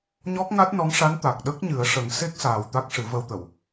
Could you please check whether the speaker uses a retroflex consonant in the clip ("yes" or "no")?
yes